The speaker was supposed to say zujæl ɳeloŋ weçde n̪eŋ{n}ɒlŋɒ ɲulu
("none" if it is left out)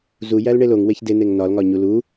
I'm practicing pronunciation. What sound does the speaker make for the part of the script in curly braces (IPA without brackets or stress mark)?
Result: n